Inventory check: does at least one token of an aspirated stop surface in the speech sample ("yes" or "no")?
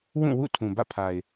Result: yes